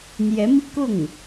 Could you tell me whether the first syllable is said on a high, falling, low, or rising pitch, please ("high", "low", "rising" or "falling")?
rising